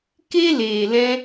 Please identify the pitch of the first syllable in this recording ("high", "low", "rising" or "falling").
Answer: high